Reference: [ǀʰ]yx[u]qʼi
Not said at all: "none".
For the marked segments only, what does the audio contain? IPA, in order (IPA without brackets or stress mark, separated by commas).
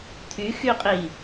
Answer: t̪ʰ, y